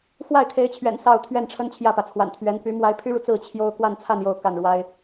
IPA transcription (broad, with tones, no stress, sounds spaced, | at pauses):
x w a˥˩ ɪ̯ kʰ e˧˥ ɪ̯ t͡ɕʰ ɥ ɛ̰˨˩ n s ɑ˥˧ ʊ̯ t̪ʰ ɥ ɛ˥˩ n ʈ͡ʂʰ ə˥ n t͡ɕʰ j ä˥˩ p ä˩ t͡sʰ w a̰˨˩ n t̪ʰ ɥ ɛ˧˥ n p y˧˥ m w a˧˥ ɪ̯ pʰ y˥ ɻ u˨ t͡s ɹ̩˥˩ t͡ɕʰ j o˥ ʊ̯ k w a˥˧ n t͡sʰ a˥˧ n j o˥˧ ʊ̯ k a˥˩ n ɻ w a˥ ɪ̯